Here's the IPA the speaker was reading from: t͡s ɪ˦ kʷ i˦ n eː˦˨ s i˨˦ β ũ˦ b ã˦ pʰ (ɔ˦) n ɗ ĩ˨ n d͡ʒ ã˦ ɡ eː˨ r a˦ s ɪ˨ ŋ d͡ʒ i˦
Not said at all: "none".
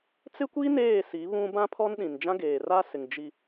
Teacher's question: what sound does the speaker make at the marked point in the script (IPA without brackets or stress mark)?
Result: ɔ˦